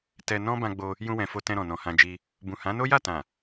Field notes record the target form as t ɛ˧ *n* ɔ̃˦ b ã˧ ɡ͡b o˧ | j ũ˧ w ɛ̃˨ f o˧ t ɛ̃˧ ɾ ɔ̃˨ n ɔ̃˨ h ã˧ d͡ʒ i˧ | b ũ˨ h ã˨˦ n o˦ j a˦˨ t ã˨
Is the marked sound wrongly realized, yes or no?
no